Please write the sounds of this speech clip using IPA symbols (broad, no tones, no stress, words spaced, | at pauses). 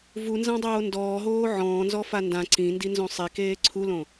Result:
vunzãdˤoː ndɔːɦoː ʕɔ̃ːnzɔfa ndã ǀĩndinzõ sˤikeː ǀʰulõ